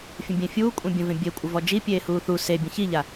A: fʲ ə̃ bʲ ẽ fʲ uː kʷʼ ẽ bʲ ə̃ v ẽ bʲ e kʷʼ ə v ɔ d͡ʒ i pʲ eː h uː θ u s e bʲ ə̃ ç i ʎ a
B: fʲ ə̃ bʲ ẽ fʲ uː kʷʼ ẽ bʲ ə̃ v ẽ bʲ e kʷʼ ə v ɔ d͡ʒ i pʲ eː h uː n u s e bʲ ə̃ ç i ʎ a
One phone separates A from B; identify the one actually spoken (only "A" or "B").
A